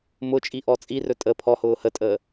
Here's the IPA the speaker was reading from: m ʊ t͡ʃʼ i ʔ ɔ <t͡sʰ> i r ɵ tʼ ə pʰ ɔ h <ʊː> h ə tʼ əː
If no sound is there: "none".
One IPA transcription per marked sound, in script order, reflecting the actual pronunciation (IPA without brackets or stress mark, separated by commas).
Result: t͡sʼ, ʊː